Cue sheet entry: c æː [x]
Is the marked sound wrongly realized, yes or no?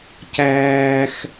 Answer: no